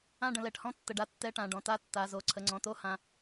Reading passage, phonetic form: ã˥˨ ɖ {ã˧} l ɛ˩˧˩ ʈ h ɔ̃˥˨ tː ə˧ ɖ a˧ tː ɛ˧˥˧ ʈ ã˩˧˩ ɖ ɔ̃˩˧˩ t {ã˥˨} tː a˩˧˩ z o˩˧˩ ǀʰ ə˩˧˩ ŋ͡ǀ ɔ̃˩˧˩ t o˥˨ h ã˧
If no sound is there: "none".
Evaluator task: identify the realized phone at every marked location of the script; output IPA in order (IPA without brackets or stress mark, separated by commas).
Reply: ə̃˧, a˥˨